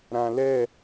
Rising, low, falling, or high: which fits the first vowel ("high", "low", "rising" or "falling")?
low